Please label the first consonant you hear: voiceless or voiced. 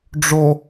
voiced